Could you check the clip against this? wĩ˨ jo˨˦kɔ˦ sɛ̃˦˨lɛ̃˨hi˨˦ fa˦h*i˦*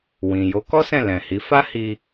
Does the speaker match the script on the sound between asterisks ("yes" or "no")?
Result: no